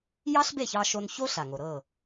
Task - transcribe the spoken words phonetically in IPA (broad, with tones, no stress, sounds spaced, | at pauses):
j ɑ˥ ɬ b e˥˩ ç ɑ˧ ʃ o˧ n ç o˥ ɬ a˩ ŋ o˩ ɾ ɤ˥˩